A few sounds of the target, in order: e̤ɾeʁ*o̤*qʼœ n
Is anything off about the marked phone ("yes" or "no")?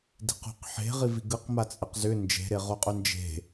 yes